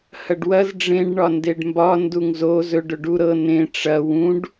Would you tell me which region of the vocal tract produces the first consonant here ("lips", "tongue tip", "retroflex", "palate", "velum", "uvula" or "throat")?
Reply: throat